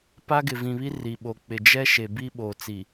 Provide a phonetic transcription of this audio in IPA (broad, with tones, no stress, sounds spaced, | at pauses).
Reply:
p a˦ ɡ ɪ˨ v ĩ˨ β i˦ r i˨ ɓ o˨ k͡p ɪ˨ d͡ʒ ɛ˦ ʃ e˨ b i˦ ɓ oː˨ t͡s i˨